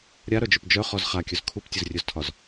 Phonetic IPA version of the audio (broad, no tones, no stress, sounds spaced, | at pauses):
ɾʲ a ɾ œ d͡ʒ ɵ p d͡ʒ œ χ ɔ z χ a kʲ ɵ z kʰ u p tʲ ɵ z rʲ ɵ z tʰ ɒ z